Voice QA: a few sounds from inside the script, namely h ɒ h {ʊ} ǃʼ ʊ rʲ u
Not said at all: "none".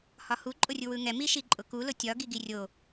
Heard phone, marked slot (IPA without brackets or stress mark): u